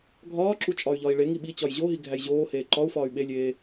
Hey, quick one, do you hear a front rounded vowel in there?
yes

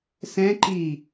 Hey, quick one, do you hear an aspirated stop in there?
no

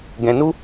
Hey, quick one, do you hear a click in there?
no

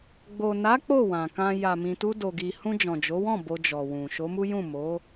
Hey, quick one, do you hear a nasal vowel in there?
yes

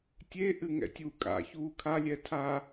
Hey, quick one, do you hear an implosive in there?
no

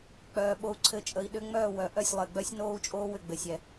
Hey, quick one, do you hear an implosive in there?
yes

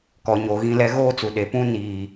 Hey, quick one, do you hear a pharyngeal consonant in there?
no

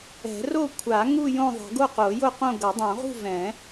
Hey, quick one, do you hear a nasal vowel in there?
yes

